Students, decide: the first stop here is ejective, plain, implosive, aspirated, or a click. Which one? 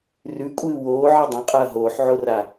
ejective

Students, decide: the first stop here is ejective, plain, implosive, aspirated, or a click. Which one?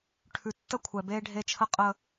aspirated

